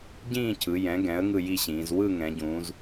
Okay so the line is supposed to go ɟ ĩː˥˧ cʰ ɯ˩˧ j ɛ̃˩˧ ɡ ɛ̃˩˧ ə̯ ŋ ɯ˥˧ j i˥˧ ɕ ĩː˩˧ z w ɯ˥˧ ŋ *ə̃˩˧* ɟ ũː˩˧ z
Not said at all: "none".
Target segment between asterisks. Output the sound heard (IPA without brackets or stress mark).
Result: ɛ̃˩˧